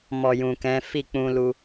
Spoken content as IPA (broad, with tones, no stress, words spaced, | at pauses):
mɔ˨jũ˨kɛ̃˨˦ fi˦˨k͡pũ˧lu˧